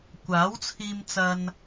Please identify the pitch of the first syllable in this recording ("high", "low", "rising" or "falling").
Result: rising